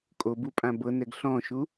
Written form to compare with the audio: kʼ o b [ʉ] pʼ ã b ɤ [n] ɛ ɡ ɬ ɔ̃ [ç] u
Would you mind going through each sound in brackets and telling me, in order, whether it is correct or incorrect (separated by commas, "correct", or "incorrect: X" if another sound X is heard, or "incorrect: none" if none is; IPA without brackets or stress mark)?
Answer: incorrect: u, correct, incorrect: ʃ